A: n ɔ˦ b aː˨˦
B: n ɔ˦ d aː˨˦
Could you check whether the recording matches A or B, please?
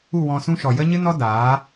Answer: B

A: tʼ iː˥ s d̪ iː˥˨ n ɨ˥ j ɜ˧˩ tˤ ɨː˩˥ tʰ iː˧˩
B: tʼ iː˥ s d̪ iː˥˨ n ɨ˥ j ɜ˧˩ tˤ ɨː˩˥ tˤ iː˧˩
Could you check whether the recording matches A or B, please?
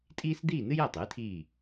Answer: A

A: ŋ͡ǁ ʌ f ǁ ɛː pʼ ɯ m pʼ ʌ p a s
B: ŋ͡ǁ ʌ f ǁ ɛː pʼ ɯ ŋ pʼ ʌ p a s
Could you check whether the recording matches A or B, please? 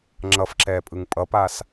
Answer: B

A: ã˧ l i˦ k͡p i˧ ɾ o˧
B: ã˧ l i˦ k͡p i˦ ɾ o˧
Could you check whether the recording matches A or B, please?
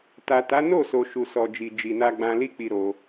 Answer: A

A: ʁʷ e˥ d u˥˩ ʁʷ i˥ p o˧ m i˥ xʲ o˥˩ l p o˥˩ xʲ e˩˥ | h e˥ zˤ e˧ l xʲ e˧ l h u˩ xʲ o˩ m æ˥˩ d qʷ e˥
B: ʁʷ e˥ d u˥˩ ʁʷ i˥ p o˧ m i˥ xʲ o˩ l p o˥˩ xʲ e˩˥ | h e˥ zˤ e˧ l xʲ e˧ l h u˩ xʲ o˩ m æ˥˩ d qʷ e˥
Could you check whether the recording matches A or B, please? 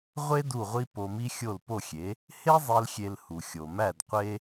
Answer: A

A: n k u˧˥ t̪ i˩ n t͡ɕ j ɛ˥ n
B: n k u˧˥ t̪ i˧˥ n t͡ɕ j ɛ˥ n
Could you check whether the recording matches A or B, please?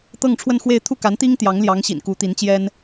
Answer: B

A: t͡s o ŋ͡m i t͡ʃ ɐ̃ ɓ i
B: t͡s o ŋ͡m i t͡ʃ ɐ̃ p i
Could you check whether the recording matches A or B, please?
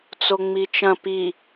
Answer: B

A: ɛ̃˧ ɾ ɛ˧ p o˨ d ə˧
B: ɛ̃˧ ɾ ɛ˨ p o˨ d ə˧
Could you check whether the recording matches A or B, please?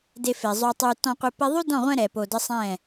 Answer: B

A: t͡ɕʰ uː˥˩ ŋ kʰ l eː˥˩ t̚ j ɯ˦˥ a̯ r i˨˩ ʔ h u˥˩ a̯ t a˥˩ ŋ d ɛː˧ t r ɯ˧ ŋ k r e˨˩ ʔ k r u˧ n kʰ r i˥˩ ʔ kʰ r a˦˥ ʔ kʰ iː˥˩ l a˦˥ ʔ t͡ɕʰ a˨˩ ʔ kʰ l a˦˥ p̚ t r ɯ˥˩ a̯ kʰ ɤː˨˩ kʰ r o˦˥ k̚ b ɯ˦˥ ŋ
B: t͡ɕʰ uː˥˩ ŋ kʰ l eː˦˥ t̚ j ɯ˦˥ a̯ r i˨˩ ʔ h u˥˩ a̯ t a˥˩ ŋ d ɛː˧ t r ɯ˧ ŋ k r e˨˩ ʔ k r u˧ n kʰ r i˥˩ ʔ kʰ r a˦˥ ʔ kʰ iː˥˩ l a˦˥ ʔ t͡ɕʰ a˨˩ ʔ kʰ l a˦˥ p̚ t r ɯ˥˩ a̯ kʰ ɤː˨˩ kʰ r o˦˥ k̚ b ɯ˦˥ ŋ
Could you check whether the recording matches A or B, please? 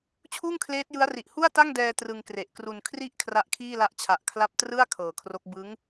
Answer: B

